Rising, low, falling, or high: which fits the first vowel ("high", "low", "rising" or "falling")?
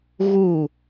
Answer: falling